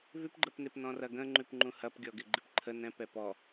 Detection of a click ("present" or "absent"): present